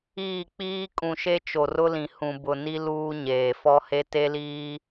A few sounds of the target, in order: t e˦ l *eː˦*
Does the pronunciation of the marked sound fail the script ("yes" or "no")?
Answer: yes